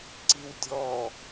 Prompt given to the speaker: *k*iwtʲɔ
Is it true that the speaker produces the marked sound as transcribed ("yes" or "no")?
no